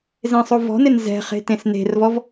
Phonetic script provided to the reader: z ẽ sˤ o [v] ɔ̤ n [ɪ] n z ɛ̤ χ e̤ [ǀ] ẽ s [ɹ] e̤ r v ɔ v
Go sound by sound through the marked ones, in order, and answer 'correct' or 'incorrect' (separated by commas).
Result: correct, correct, incorrect, incorrect